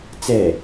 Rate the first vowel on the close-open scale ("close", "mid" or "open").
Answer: mid